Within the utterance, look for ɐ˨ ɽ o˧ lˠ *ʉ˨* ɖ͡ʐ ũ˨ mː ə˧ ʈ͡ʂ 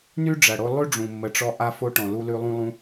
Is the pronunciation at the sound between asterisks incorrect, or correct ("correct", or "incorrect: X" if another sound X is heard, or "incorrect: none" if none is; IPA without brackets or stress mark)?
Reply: incorrect: ʉ˦